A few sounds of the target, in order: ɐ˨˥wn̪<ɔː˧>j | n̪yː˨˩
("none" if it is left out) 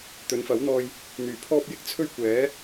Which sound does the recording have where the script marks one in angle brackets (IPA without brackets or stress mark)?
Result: ɔː˧